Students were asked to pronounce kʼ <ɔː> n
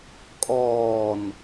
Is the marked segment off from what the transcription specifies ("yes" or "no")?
no